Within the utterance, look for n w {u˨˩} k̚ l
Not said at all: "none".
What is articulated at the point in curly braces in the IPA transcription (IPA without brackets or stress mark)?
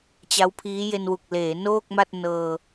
u˨˩